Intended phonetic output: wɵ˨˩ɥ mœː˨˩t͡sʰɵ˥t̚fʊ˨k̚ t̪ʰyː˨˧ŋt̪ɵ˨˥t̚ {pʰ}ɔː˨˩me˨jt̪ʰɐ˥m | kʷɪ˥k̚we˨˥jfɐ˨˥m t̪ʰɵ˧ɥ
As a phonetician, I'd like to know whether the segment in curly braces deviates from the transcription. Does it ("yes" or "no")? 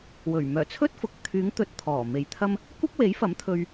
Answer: yes